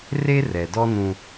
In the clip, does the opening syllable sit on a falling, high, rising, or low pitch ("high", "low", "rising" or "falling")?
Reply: high